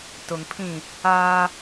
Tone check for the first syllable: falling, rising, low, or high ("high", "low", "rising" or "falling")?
low